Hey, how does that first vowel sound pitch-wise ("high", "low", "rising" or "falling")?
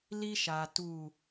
high